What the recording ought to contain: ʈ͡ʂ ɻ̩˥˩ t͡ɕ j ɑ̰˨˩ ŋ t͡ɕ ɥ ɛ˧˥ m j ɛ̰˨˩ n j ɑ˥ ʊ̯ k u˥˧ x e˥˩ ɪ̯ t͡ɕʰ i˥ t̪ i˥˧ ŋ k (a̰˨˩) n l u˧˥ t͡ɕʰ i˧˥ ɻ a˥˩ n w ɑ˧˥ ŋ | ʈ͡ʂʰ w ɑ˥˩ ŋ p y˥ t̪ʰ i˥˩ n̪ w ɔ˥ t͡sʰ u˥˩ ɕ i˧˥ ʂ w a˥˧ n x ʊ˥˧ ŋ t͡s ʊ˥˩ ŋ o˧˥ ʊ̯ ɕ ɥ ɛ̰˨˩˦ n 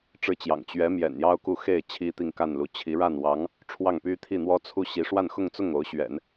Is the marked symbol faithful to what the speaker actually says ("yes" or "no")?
no